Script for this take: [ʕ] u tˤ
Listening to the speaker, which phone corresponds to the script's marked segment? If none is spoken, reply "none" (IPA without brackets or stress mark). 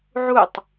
ʕ